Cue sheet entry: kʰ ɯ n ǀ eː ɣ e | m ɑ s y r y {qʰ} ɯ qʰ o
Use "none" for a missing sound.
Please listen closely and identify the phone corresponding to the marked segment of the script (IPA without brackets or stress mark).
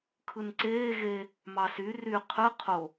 qʰ